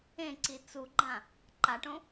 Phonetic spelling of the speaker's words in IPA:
ẽ ǀ i t͡s u ɡ͡ǃ ã | ǃ a ʈ õ

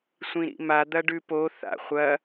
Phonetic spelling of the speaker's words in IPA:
sʷ ĩ ɾ ḭ m a d̪ ɐ ɖ ʉ p o θ a̰ χʷ ɐ

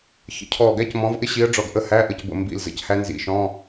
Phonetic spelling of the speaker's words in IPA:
ç ə̰˩˧˩ cʰ ɔː˧˩ ɡ æ˦˥ c m ɔ̃˨˥ v ʔ ɪ˦˥ ɕ i˨˥ ə̯ ɖ͡ʐ ɔ˧˩ ɡ ʔ ə˧˥˧ h æ˧˥˧ ʔ ə˧˩ c b ə̰˧˩ m b ḭ˧˩ l z ə̰˨˥ c h æ˦˥ n z ḭ˧˩˧ ʃ ɔ̃˧˥˧

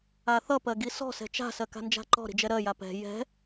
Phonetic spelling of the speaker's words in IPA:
a θ ʌ p ɜ ɡ i s ɔ̤ s ɛ̤ t͡ʃ a̤ s ɜ k a̤ n d͡ʒ a̤ ǃ ɔ̤ ɾ i̤ d͡ʒ ɛ ɾ ɜ j a p ɛ̤ j ɛ̤

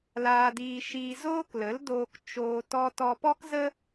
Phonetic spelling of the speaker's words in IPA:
l aː˧ d iː˧ ʃ iː˧ z oː˦ k l ə˨˦ l d oː˧ k t͡ʃ oː˧ t ɔ˧ t ɔ˧ p ɔ˦ k z ə˦

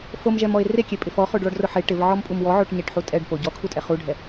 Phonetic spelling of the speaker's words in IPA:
f o m ʒ ɛ m ɔ e̯ r e kʲ e pʼ ɪ f ɔ χ o ɖ ɭ ɔ ɖ r ʊ ħ e ʈ ɪ v ʕ ɔ m pʼ u m w ɔ ʕ o ʈ ɲ e ʈ ħ u tʼ ɛ ɖ p o ɟ ɔ kʰ u tʼ ɛ χ u ɖʱ ɛ

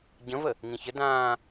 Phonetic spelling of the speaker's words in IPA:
ɟ ə̃ v ə | ŋ ĩ ç ə d ãː

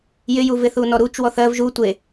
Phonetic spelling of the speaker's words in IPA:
j ɪ j u v ɪ θ u n ɔ ɾ u t͡ʃ w ɔ θ ɜ v ʒ u tʷ e

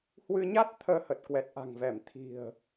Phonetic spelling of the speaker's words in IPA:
h w ɨ˧ ɲ a˦˥ t̚ t̪ʰ əː˧ h ə˨˩ t̚ k w ɛ˨˩ t̚ ʔ a̤˨˩ ŋ v ɛ˧˩ m t̪ʰ i̤˨˩ ə̯

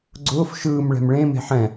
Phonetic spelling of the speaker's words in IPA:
ɡ͡ǀ ʊː f ʃ ɯː m ɭ ɛ̤ m ɭ ẽ m e̤ ħ ɛ̃

